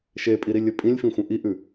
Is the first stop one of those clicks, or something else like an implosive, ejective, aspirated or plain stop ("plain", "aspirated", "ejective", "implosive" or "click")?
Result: ejective